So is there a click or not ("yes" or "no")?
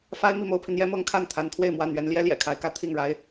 no